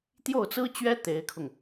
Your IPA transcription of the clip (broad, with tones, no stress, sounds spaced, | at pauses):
t̪ j o˥˩ ʊ̯ t͡s ɹ̩˥ t͡ɕ ɥ ɛ˥ t̪ e˧˥ ɪ̯ kʰ ʊ˧ ŋ